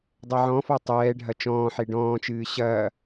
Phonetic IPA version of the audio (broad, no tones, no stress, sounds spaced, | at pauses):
dˤ ɛ ʕ ɔ̃ f ɔ tˤ ɛː ɖʱ ɐ t͡ʃ ɔ̃ː ħ e ɖ ɔ̃ː t͡ʃ ɨː ɕ ɐː